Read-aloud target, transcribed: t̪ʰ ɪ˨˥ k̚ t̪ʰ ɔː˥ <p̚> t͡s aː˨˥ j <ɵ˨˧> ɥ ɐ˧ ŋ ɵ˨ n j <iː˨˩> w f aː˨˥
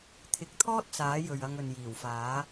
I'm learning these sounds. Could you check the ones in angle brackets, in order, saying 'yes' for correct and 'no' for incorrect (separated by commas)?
no, no, yes